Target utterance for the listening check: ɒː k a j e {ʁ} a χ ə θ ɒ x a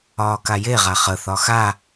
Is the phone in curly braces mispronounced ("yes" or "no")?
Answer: no